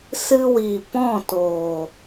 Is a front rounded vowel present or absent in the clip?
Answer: absent